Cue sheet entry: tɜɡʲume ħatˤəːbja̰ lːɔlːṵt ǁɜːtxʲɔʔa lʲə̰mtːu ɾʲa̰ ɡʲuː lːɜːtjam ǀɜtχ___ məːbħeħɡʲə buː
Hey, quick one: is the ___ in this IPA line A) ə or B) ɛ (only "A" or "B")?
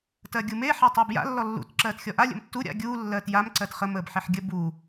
A